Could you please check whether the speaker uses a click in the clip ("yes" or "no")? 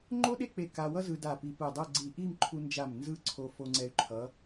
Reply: yes